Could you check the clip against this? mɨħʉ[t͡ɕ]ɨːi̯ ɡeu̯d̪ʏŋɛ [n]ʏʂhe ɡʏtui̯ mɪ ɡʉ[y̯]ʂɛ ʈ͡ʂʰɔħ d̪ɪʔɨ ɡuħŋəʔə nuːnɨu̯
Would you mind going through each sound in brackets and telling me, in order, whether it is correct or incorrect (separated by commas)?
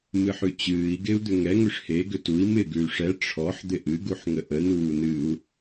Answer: correct, incorrect, correct